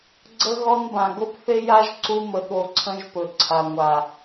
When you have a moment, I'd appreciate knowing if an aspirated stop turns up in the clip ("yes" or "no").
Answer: yes